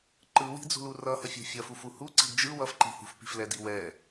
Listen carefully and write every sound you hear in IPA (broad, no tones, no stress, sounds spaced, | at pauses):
ǃ ɯ w i̤ d͡z ṳ l u r ʌ h ʌ fʲ o̤ fʲ ʌ f u f u h u ǀ i̤ d d͡ʒ ɯ w ʌ f ǃ i̤ h ṳ f p i̤ f l ɛ d i w ɛ